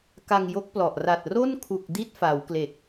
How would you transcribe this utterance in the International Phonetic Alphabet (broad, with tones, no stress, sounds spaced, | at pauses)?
k a˧ ŋ j o˦˥ k̚ p l ɔ˨˩ ʔ r a˨˩ t̚ r o˥˩ n kʰ u˨˩ k̚ d i˥˩ t̚ f a˩˦ w k l e˨˩ k̚